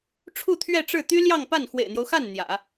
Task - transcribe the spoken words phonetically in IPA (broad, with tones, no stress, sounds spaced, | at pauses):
ʈ͡ʂʰ u˥˧ t̪ʰ ɥ ɛ˥˧ ʈ͡ʂ ɻ̩˥˩ t̪ y˥ l j ɑ˥˧ ŋ p a˥˩ n x w ḛ˨˩ ɪ̯ n̪ j o˦ ʊ̯ x a˥˩ n n̪ j ä̰˨˩˦